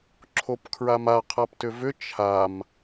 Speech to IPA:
ǁʰ o p kʰ ɹ a m a qʰ a p t ʏ v ʏ t͡ʃʰ a m

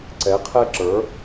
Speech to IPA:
ǀ ɛ˩˥ qʰ ɛ˥ ǁ ə˞˩˥

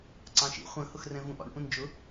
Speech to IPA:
ǀ ɑ̃ ʃ ḭ χʷ ə̃ h ʊ x r ɛ̃ v ũ ʔ ɔ̰ ɳ ʔ ũ n d͡ʒ ʊ

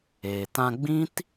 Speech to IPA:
eː˨ t ã˧ ɡ͡b ĩ˦ t

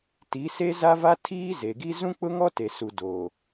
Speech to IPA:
t i˨˦ s e˦ z a˦ v a˦ tʰ iː˦ z e˨ ɡ i˦ z ũ˦ k͡p ʊ˦ ŋ ɔ˦ t e˨ s u˨ d oː˨

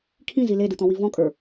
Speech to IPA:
kʰ ĩ z i l e d ɯ t̪ ɔ̃ w i v ɔ̃ kʼ ə˞

